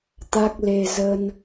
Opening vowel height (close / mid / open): open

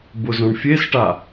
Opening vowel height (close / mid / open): close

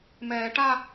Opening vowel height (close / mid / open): mid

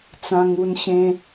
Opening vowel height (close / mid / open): open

